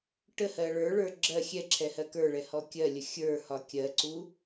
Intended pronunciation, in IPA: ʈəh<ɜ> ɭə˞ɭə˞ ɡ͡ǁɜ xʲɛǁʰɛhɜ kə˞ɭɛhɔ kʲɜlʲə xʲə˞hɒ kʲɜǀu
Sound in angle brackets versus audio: correct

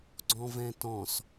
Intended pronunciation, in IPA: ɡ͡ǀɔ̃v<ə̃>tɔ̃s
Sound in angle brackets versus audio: incorrect: ɛ̃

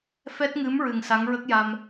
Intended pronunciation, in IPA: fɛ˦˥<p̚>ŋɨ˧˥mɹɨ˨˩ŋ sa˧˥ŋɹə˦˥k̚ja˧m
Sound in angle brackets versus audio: incorrect: t̚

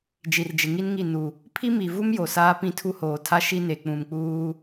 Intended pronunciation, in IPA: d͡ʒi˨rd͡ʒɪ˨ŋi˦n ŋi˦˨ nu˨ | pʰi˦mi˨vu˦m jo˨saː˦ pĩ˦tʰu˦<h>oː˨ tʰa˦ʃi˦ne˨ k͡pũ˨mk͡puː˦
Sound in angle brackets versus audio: correct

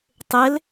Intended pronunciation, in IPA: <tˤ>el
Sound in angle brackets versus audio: correct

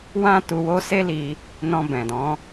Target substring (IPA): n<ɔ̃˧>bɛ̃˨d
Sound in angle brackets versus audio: correct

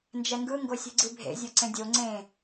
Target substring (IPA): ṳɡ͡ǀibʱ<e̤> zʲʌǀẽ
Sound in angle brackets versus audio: incorrect: ḛ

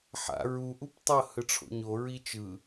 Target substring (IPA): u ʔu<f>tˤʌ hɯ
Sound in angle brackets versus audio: incorrect: p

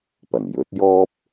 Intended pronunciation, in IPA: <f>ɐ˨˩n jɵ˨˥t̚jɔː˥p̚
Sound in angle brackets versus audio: incorrect: p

